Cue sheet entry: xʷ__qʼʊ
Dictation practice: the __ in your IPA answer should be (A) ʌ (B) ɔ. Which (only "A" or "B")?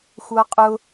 A